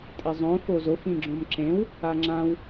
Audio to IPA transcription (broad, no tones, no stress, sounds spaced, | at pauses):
tʼ ɪ zˤ õ f o z o f ĩ ɡ͡ǁ õ m ǁ ẽ w | a ŋ͡ǁ ã w